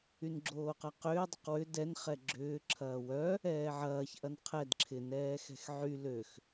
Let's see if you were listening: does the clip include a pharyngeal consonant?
yes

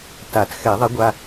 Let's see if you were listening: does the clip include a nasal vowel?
no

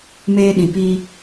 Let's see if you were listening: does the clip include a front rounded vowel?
no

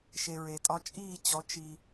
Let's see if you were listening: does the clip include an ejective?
yes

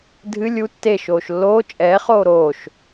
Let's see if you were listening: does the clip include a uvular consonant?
yes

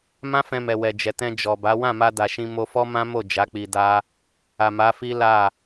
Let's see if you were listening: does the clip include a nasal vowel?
yes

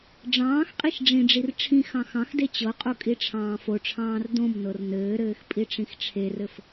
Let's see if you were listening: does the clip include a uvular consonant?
yes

